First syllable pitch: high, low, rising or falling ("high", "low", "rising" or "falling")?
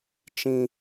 high